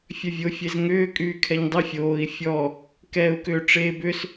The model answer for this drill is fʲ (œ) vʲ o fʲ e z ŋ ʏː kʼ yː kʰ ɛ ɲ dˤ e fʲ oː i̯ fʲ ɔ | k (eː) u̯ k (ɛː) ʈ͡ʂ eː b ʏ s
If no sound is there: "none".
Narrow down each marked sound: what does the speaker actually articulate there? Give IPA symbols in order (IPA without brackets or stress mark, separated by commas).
œ, ɛː, ʏː